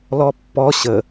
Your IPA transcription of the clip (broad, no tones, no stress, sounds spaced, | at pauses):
l ɔ pː ɔ ɕ ə